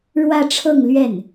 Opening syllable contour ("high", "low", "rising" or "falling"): falling